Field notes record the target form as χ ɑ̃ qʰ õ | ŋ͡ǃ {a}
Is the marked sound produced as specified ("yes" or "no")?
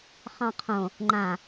no